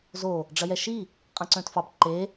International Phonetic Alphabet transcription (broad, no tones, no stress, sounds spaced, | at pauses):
z o | ɖ͡ʐ ɐ j ɛ ʃ i | qʼ ɐ̃ ǀ œ̃ t f ɑ b ǃ e